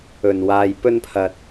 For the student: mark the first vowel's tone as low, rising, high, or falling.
low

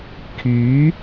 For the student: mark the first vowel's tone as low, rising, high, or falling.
rising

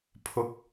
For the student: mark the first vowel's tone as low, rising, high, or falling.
rising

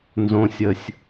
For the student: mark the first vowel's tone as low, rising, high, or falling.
low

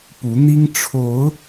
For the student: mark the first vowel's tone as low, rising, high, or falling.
rising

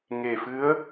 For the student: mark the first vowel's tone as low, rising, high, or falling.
low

